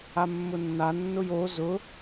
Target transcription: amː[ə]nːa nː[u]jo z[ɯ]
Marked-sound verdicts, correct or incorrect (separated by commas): incorrect, incorrect, incorrect